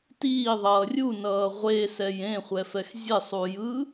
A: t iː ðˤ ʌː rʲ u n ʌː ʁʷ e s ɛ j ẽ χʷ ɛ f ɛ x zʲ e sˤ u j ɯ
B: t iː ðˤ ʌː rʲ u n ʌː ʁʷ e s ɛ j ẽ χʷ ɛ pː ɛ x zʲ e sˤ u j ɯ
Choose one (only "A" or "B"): A